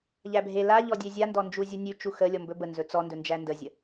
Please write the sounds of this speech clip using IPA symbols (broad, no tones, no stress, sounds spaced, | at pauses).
ʎ æ bʱ e l a ʎ ɔ dʲ e zʲ a n d ɔ n d͡ʒ u zʲ u nʲ ʉ t͡ʃ u x ə lʲ ɔ m b ɵ b ə n z ɵ t͡s ɔ n d ɵ n d͡ʒ æ n d ə zʲ ə